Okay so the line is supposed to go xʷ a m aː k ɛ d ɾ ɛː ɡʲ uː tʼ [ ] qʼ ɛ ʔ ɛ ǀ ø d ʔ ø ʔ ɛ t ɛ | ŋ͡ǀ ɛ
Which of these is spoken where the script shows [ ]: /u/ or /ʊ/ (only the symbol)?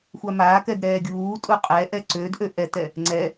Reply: u